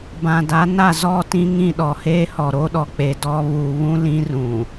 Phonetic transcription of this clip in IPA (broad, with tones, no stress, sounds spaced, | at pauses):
b ã˨ d a˨˦ n a˦˨ z ɔ˦˨ t ĩ˦ ŋ ĩ˦˨ ɗ ɔ˨ h eː˦ h ɔ˨ ɾ o˦ ɗ ɔ˨ k͡p e˨ d ɔ˦ β uː˨ β ũ˦ l ĩ˦ r ũ˨